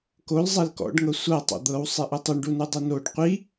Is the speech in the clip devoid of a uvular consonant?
no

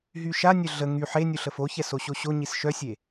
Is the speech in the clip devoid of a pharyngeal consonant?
no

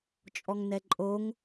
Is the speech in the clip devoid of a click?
no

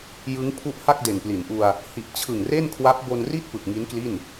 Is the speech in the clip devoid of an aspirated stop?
no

